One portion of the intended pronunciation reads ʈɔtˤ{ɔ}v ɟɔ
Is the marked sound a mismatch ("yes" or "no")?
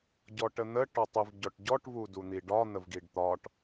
yes